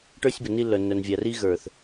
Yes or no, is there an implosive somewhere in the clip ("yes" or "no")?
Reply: no